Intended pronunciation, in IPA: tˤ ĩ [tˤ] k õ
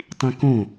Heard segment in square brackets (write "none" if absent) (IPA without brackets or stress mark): none